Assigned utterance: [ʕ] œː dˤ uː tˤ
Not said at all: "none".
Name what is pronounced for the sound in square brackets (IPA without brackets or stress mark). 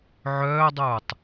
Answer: ʕ